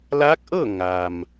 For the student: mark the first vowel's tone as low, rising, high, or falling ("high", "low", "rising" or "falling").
rising